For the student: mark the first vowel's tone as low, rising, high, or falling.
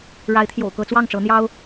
rising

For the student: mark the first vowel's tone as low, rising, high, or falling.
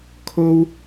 high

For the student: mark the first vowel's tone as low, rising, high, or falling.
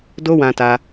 high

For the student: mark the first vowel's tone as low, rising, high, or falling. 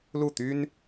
falling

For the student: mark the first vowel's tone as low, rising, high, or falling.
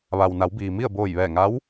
low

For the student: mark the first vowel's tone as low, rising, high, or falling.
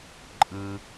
low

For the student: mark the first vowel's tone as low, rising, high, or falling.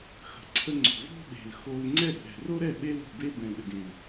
low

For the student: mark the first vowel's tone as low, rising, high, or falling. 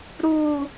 high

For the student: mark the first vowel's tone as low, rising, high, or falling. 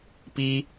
high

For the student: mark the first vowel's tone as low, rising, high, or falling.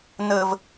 high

